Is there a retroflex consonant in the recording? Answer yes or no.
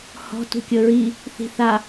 no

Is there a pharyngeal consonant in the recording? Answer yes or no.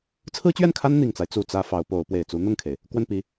no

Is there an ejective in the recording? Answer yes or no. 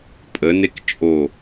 yes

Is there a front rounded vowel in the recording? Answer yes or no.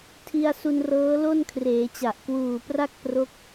no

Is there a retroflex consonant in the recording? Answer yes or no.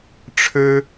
yes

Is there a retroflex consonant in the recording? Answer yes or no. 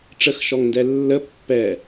yes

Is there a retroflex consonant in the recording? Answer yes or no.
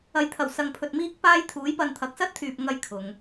no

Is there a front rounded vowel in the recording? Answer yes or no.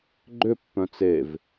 yes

